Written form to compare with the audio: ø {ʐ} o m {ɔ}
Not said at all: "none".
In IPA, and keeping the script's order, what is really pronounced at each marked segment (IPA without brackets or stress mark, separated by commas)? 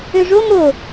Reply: ʐ, o